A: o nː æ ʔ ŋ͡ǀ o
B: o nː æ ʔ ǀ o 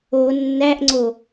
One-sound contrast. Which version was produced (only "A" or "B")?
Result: A